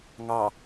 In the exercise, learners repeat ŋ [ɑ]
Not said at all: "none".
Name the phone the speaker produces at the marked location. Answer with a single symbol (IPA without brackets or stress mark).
ɑ